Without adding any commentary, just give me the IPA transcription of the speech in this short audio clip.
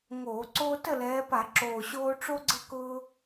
ŋ oː˧˩˧ ǀ oː˦ t ə˥˩ l ɛː˨˦ p a˧˩˧ ǁ oː˨˩ ɕ oː˦ ʈ͡ʂ o˦ ɡ͡ǀ ə˦ k ʊː˦

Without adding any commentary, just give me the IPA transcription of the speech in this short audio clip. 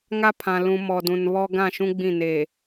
ŋ a˦ pʰ ã˨ l ũ˨ m ɔ˨ d ũ˨ n β ɔ˦ ɡ ã˦˨ ʃ ũ˦ ɡ͡b ĩ˦˨ n eː˨

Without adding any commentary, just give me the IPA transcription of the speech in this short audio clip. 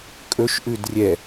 kʼ ɵ ʃ ʔ ʉ d rʲ ɛ

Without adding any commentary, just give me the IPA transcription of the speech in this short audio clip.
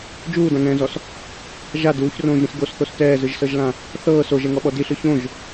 d͡ʒ uː d ã ŋ ɛ̃ː z ɔ s | ʒ a d uː ç r õː ʒ ɾ ĩ s ɡ o s θ o s t ɛː z ɯ ʒ s ɤ ʒ l ã | θ ɤː s o ʒ ɛ ŋ ɔ ɓ ɔ d i ɬ ɯ ç õ ʒ

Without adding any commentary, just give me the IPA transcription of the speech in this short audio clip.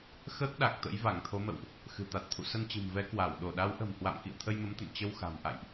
x əː˦˥ k̚ ɗ a˨˩ k̚ t̪ ə̰˧˥ j v a˧˩ ŋ t̪ʰ o˨˦ m ə̰˧˨ w ʔ | x ɨ̤˨˩ t̪ a˨˩ t̚ t̪ʰ ṵ˧˨ s ə˧ n t͡ɕ ɨ̤˨˩ m v ɛ˨˦ k w a˧˩ w ɗ o˧˩ ɗ a˨˦ w ʔ ə̤˨˩ m h w a̰˧˨ m k ḭ˧˨ ə̯ t̪ʰ ə˧ j m ə˨˦ m t̪ ə̰˧˨ n t͡ɕ ə˧ w x a̤˨˩ m ʔ a̰˧˨ j ʔ

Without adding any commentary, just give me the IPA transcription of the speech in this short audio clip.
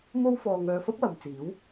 m o˥ w f ɔː˧ ŋ œː˧ f ɐ˥ p̚ w ɐ˨ m t͡s iː˨˥ w

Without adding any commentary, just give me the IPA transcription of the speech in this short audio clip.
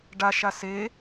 ɖ a ʃ a s e

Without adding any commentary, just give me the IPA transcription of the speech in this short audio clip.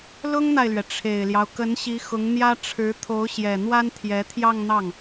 l ʊ˥ ŋ n̪ a˨ ɪ̯ l ɥ ɛ˩ ʈ͡ʂʰ e˨˩ ɪ̯ l j ɑ˦ ʊ̯ k ə˧˥ n ɕ i˧˥ x ʊ˧˥ ŋ n̪ j ä˥ ʈ͡ʂʰ ɻ̩˧˥ t̪ʰ o˧˥ ʊ̯ ɕ j ɛ˨˩ n̪ w a˥ n t̪ʰ j ɛ˧˥ t̪ʰ j ɑ˥˧ ŋ n̪ ɑ˥˩ ŋ

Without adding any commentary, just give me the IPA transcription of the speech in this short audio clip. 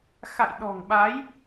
x a̰˧˨ j ɗ ɔ̤˨˩ ŋ ɓ a˨˦ j

